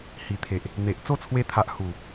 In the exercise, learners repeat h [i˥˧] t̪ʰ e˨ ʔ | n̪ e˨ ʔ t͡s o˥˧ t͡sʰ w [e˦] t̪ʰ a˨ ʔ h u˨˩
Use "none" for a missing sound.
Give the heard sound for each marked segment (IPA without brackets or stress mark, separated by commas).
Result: i˨˩, e˧